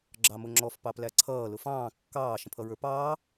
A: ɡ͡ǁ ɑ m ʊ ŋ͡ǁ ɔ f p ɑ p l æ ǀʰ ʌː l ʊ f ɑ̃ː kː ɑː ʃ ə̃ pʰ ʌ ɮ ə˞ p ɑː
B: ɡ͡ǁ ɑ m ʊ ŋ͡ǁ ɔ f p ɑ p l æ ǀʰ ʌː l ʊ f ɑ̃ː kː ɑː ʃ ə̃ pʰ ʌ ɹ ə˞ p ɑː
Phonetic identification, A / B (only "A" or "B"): B